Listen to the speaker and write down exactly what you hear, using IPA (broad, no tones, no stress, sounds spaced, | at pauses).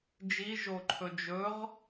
d͡ʒ i ʒ o ǃʰ ɵ d͡ʒ ɵ ʁ